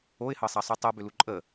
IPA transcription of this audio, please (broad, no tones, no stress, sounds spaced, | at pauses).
o ɪ̯ h ɤ sˤ ɑ sˤ u tˤ o b ʏ l u ǃʼ ə